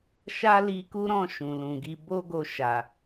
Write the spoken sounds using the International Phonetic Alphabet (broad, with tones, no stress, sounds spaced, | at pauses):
ʃ a˦ l i˧ k u˦ ɾ ɔ̃˦˨ ʃ ũ˨ l ũ˨ ɡ i˧ b o˦ ɡ o˧ ʃ a˨